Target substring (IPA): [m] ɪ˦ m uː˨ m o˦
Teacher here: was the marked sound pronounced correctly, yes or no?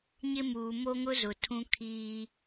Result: no